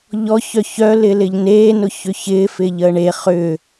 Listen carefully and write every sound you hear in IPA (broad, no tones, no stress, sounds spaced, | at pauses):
ʎ ɔ ç œ ç œ l ɪ l ɪ ʎ n eː n ʊ ç ʏ ç ɪː f ɪ ʎ əː ɳ e χ ʏ